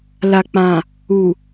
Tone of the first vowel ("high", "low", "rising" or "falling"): low